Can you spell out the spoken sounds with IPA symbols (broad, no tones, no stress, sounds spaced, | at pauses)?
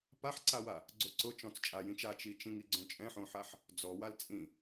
p a ħ ǀ a w a | ɡ͡ǀ o ǀ ʊ t͡ʃ ɔ̃ t͡s t͡ʃʼ a j ĩ t͡ʃ a t͡ʃ i t͡ʃ ĩ ŋ i ɡ͡ǀ õ t͡ʃʼ ɛ̃ ħ õ ħ a ħ | d͡z ɔ w a l t͡sʼ ĩ